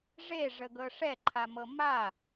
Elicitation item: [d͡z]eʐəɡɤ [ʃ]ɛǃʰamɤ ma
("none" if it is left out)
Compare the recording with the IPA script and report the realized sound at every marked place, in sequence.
ʐ, ʂ

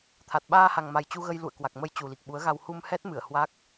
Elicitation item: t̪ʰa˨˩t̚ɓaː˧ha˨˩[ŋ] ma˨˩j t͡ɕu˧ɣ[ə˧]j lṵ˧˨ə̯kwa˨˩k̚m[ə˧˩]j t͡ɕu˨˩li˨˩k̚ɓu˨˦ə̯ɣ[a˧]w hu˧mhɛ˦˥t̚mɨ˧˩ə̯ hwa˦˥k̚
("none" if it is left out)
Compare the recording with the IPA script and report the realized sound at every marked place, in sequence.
ŋ, ə˧, ə˧, a˧

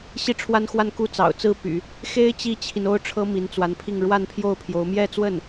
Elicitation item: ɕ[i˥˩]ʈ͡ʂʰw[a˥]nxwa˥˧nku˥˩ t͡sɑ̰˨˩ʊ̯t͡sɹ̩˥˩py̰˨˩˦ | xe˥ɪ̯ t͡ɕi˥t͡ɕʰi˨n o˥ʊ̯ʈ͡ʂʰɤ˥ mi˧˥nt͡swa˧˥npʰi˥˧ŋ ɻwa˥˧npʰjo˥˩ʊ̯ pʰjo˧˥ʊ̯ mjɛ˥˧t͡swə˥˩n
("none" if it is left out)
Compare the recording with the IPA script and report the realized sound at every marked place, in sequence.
i˥˩, a˥

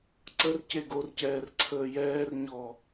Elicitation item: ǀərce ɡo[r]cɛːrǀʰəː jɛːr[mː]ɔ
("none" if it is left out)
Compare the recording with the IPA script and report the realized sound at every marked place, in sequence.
r, ɲ

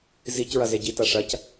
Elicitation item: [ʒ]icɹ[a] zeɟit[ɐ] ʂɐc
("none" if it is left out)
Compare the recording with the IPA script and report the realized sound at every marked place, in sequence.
z, ɐ, a

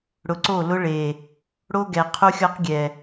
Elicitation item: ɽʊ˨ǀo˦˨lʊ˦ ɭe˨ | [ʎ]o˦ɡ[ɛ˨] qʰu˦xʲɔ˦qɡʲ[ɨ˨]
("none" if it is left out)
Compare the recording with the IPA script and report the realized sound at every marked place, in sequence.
ɽ, ɛ˨, ɛ˨

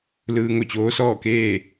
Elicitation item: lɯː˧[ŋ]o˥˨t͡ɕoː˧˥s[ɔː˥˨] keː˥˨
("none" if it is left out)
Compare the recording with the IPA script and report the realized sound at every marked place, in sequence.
ŋ, ɔː˥˨

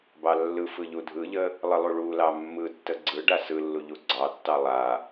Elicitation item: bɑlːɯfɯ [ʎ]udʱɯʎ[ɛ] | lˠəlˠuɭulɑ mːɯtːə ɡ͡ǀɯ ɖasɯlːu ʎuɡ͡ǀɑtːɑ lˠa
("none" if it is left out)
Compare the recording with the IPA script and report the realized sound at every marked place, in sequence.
ʎ, ə

